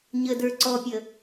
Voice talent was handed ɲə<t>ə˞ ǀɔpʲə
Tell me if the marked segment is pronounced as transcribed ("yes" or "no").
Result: no